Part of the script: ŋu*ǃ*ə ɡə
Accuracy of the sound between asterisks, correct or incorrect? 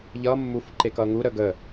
incorrect